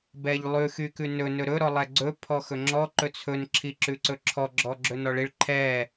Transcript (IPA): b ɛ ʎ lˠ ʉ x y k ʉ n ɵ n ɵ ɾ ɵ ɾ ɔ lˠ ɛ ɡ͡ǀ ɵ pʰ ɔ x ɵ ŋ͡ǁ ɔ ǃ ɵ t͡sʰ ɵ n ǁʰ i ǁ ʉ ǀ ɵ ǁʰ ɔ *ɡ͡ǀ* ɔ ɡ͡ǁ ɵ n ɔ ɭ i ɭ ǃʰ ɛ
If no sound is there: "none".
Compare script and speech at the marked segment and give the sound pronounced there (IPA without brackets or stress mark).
ɡ͡ǁ